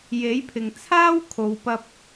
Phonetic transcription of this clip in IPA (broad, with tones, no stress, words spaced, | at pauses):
je˨˥jpʰɪ˨ŋ t͡sʰaː˥wkʰo˨wpɐ˧p̚